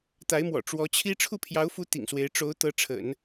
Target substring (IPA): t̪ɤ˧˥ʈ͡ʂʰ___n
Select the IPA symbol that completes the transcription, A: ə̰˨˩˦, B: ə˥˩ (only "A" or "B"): A